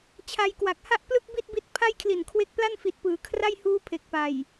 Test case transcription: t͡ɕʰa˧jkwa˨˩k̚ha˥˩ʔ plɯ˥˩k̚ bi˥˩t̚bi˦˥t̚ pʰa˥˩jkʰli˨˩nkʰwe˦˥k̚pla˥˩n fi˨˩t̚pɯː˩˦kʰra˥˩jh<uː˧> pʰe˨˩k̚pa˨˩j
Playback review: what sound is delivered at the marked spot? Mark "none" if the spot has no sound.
uː˦˥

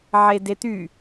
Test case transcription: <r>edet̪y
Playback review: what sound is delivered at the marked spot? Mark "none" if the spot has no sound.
ʕ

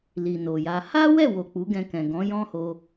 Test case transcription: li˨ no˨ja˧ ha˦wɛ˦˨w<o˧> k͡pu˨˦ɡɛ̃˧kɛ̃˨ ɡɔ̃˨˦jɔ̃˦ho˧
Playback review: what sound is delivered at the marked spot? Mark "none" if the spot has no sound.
o˨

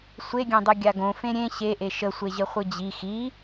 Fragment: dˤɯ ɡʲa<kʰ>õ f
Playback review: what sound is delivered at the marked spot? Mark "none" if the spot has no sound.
ɡ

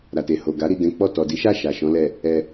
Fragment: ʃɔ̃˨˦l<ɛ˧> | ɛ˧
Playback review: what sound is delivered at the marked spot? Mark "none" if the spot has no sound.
ɛ˦˨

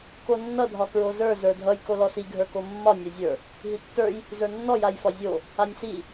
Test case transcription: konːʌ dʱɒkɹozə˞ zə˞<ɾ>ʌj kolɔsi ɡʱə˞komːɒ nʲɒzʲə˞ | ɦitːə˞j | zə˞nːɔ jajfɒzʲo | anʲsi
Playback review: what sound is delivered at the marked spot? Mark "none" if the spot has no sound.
dʱ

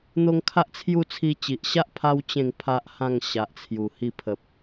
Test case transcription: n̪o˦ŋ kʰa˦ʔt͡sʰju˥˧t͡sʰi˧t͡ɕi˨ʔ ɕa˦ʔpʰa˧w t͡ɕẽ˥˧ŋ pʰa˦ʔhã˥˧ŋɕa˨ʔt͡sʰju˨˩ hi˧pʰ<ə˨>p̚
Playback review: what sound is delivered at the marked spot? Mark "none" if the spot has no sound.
ə˨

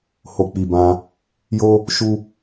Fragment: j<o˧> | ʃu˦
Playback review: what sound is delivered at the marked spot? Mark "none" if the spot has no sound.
o˦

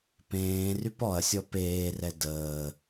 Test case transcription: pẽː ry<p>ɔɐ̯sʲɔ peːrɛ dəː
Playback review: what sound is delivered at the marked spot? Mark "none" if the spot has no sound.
p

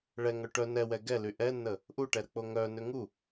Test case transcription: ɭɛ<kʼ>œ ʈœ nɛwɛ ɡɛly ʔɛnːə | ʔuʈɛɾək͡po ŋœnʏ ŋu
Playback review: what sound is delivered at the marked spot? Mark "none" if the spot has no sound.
ŋ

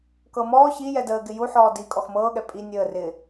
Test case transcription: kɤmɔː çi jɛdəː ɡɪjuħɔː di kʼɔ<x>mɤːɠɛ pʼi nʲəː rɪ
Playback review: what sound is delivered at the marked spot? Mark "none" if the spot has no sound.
x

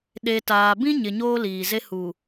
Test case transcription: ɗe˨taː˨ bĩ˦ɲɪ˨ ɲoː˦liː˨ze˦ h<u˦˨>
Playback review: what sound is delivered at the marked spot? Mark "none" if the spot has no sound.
u˨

